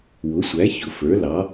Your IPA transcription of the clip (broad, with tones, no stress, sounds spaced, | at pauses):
w ʊ˩˥ sʷ æ˩˥ ç ʊ˩˧ f ə˞˩˥ l ɑ˩˥